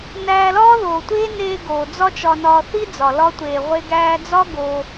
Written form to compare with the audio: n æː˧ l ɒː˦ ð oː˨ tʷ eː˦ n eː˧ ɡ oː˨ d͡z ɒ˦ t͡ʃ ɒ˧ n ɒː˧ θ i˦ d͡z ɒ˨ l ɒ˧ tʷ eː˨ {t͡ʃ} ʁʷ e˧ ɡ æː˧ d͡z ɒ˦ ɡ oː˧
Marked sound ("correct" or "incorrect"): incorrect